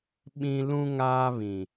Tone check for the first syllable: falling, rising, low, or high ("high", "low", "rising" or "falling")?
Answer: high